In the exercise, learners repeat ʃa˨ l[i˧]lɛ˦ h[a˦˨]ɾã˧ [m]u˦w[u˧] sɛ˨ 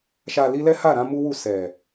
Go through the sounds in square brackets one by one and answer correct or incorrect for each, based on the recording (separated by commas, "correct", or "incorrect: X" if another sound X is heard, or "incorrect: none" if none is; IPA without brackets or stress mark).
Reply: correct, correct, correct, incorrect: u˦˨